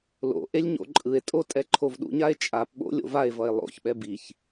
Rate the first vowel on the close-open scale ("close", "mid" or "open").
mid